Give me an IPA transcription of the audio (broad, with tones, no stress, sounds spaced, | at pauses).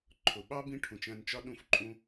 ǃʰ ʊ˨ ɓ ɑ˦ b ĩ˦ ʈʰ ũ˨ t͡ʃ æ̃˧ n t͡ʃ ɒ˦ ɗ ũ˧ f ǃʼ ũ˧